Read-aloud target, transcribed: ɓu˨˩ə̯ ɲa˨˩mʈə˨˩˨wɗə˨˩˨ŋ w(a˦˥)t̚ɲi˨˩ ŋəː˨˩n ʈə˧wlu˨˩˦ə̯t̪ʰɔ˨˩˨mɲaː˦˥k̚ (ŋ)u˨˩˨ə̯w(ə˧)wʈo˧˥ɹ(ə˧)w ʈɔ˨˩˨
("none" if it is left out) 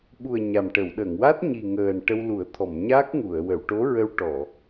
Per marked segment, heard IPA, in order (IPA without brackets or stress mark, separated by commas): a˦˥, ŋ, ə˨˩˨, ə˧